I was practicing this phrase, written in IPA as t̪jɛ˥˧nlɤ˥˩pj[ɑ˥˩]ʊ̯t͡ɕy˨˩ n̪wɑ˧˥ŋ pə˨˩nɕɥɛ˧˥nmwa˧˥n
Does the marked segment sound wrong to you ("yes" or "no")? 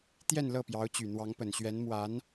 yes